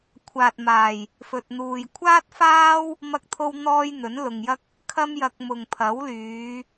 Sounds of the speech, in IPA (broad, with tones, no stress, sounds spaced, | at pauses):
kʷʰ aː˨ t̚ m aː˨˩ j | f ɵ˨ t̚ n̪ uː˨ j kʷʰ aː˥ t̚ f aː˥ w | m ɐ˥ k̚ t̪ʰ o˥ w n̪ ɔː˥ j n̪ ɵ˨˥ n l ʊ˨ ŋ j ɐ˥ k̚ | kʰ ɐ˥ m j ɐ˧ k̚ m ʊ˨ ŋ pʰ ɐ˨˥ w l yː˨˧